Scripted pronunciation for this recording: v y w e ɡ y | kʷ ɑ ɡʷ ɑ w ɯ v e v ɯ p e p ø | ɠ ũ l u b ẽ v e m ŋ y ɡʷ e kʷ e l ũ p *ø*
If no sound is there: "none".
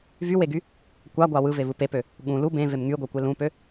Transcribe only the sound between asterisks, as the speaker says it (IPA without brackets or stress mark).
ø